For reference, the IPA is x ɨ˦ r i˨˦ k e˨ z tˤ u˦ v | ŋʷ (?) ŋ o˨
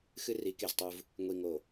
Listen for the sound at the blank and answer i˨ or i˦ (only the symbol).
i˨